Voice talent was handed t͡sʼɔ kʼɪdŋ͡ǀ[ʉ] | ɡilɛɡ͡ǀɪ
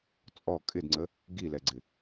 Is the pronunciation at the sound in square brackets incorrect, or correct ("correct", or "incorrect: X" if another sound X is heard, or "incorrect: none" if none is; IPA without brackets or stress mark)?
incorrect: ə